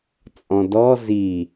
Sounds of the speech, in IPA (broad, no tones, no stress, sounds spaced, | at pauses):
t͡sʼ ɔ̃ d ɔ z i